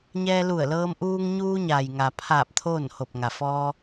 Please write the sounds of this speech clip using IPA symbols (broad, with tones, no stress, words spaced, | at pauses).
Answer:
ɲɛː˧lu˧˩ə̯lɤː˧m ʔuː˧ŋɲuː˧ɲa˩j ŋa˩pʰaː˧˩p̚ t̪ʰoː˥˨nho˧˩p̚ŋa˩ fɔː˧